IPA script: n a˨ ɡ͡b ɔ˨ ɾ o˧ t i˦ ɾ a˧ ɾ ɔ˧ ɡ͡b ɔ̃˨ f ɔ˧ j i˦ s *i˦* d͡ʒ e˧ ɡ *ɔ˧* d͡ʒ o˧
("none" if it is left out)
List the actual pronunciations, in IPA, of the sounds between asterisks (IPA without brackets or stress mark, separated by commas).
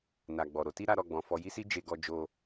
i˦, ɔ˧